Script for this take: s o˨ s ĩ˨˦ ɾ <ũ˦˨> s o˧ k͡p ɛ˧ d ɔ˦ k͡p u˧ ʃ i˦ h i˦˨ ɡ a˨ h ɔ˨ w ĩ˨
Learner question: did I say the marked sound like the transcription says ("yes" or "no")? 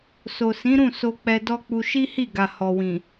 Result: yes